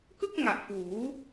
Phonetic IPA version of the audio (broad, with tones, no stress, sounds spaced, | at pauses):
k ɯ˥˩ k̚ ŋ a˨˩ ʔ f uː˩˦